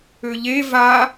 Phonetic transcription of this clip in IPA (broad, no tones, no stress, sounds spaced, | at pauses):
ø ʎ e v a